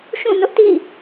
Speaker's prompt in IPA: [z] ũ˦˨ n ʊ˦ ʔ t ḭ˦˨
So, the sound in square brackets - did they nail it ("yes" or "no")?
no